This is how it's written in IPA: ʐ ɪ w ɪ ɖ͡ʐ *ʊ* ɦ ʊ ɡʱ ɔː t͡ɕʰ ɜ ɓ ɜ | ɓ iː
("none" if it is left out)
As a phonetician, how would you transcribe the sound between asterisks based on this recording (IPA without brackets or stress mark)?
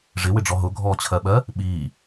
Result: ɔ